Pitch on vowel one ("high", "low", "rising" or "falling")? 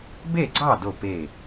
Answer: falling